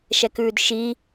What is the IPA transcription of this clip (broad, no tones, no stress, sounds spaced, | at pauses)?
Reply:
ʃ ɛ k ʉː d ʃ i